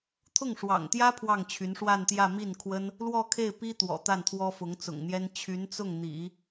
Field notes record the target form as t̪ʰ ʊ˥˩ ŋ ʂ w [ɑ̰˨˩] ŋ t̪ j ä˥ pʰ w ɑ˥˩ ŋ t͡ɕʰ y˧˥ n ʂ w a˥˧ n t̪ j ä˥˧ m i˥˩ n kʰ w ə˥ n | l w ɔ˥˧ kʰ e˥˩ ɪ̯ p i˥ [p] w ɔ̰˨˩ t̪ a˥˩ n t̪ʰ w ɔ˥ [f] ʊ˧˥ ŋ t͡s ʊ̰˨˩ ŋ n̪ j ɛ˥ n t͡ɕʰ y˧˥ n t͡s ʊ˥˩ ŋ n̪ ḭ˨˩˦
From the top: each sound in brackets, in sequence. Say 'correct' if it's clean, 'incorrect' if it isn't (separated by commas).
correct, incorrect, correct